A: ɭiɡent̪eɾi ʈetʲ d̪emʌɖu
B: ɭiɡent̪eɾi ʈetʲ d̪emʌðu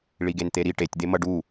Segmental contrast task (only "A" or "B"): A